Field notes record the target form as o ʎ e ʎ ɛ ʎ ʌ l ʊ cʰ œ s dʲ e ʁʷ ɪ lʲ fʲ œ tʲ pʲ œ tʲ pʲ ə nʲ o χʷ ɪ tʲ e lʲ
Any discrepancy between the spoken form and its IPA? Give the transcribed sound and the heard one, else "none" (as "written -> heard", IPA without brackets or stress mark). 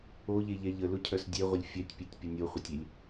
ʌ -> ə